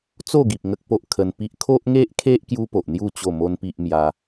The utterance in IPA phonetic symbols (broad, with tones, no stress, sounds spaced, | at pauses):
t͡s o˥˧ ɡ i˨ p̚ ŋ ə˦ k̚ p o˦ ʔ kʰ ə˧ n p i˦ ʔ kʰ o˦ ʔ ŋ e˦ ʔ kʰ e˦ ʔ k j u˦ p o˨ ʔ n̪ j u˥˧ t͡ɕ o˥˧ m o˦ n p i˦ ʔ m j a˧